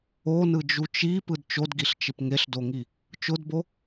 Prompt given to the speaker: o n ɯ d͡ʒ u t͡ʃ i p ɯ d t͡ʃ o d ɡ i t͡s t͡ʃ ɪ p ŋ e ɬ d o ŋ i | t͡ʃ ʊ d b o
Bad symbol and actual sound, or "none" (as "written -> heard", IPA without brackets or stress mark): t͡s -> ɬ